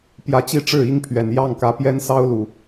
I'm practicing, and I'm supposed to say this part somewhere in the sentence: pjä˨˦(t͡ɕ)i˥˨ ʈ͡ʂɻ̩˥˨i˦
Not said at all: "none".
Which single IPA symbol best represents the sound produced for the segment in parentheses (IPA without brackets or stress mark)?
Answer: t͡ɕ